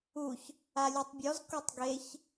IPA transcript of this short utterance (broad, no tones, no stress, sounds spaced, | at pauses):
u ç | a lʲ u tˤ bʲ ɔ z k o tˤ ɡ e ç